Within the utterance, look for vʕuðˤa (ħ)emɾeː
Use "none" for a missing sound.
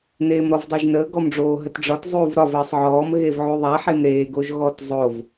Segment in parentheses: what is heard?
ħ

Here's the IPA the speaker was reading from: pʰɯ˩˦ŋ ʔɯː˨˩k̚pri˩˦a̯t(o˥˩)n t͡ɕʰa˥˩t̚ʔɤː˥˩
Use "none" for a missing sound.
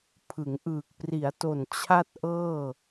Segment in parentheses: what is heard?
o˨˩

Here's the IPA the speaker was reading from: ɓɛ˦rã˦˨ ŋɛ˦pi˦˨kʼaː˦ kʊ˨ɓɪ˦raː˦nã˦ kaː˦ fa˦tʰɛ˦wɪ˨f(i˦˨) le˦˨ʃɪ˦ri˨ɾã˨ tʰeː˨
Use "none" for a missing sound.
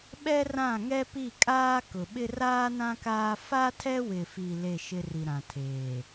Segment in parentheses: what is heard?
i˨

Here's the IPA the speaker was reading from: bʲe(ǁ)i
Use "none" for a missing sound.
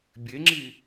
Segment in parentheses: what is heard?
ŋ͡ǁ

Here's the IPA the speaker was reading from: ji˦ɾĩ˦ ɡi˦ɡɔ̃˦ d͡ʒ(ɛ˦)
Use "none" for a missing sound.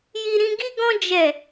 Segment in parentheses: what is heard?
ɛ˦˨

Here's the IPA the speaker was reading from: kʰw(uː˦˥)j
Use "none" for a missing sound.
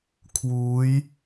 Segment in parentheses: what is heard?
uː˦˥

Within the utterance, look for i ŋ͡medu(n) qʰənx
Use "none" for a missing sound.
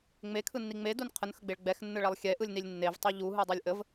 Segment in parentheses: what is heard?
n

